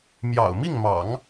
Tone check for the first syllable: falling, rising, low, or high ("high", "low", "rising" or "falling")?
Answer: low